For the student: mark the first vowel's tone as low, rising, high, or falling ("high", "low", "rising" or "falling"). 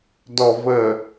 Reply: low